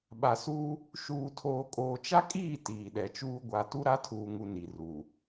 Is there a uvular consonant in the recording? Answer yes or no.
no